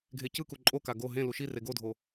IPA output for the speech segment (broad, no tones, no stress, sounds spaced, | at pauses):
ɡʱ e c ɯ k u ǃʼ o k a ɡ o ɦ ẽ l u ʃ i r e ɡ o dʱ o